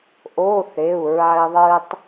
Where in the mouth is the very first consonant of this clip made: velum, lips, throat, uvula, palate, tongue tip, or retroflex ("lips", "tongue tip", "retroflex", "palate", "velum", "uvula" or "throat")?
throat